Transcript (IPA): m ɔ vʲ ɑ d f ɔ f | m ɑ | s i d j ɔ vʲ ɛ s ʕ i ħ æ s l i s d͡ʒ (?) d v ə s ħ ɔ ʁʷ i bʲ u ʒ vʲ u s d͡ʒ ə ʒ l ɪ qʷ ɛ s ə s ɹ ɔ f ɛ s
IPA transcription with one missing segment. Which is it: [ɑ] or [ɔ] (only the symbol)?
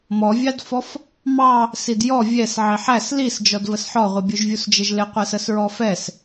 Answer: ɔ